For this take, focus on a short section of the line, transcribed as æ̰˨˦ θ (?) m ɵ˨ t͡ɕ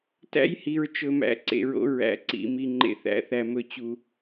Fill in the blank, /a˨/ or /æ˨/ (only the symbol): æ˨